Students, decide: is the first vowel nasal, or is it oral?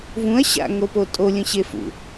nasal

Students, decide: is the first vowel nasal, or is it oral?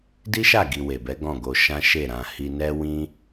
oral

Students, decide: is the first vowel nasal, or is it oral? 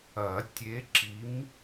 oral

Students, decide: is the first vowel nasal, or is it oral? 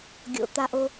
oral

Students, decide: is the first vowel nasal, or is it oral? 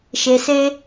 oral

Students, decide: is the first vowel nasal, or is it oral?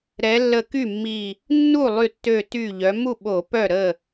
oral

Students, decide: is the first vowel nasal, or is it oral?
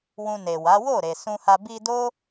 nasal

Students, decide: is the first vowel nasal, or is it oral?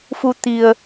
oral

